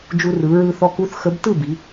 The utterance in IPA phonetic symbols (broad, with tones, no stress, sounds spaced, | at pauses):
d͡ʒ u˧ r ɯ˩˧ ɹ ɯ˧ θ ɔ˧ k u˧˥ θ x ə˧˥ b t ɯ˥˨ b i˩˧